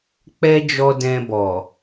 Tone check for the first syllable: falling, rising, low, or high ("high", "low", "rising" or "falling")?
high